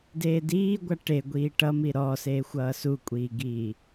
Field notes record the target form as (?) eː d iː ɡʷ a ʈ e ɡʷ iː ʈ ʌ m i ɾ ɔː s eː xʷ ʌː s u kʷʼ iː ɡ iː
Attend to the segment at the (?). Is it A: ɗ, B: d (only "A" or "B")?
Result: B